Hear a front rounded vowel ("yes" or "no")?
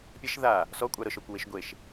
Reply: no